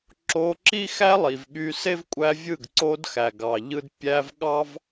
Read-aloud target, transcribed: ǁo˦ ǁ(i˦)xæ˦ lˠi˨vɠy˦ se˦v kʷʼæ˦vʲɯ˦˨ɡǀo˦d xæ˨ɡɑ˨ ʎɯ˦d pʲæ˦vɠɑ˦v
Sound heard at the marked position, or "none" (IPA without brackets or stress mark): i˦